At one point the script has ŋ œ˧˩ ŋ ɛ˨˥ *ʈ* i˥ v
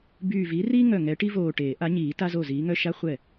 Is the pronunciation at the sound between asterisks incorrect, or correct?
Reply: correct